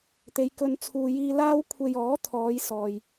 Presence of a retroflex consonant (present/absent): absent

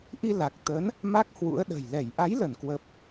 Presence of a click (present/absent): absent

